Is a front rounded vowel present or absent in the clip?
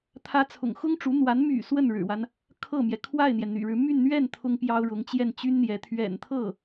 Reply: present